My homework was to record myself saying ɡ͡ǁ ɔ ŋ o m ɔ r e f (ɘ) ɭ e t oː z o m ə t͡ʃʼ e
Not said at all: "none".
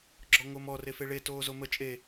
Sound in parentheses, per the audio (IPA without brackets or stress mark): e